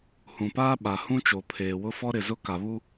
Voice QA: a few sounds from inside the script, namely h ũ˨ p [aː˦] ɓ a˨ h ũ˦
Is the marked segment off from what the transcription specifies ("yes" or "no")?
no